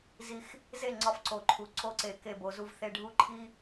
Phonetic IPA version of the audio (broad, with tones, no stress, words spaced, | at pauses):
zi˦x | ze˦˨ ŋ͡ǀɒ˦fǀo˨ǃʰu˨ ǀo˦ǀe˨ ke˦˨bo˨zu˦vθe˦ ɖʱu˦ǃʰi˦